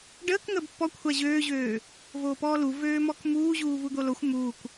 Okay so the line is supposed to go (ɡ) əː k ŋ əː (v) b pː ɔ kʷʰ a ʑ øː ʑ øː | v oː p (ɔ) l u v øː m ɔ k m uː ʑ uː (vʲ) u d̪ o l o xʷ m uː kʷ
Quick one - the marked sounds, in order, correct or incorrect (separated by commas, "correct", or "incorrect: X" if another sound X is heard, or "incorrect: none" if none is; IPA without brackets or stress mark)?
incorrect: ɖ, incorrect: none, incorrect: ɔː, incorrect: v